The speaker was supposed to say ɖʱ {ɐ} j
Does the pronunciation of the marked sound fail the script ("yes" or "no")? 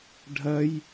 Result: no